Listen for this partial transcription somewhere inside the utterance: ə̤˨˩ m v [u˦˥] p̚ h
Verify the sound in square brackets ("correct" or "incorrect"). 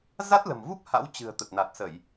correct